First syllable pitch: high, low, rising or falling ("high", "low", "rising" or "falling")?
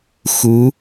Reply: rising